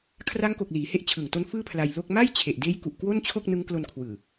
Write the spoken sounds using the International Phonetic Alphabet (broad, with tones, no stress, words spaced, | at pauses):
kʰra˦˥ŋko˨˩k̚ liː˩˦he˦˥ʔt͡ɕʰɯ˨˩ŋto˦˥n fɯː˥˩pʰla˧jlo˥˩k̚ ma˥˩jt͡ɕʰe˨˩ʔdeː˦˥j ku˨˩ʔkwo˥˩nt͡ɕʰo˥˩k̚ nɯ˦˥ŋklo˧nkʰwɯː˨˩